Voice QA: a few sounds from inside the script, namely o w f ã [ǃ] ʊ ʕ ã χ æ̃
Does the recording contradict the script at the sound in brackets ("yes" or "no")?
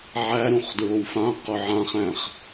yes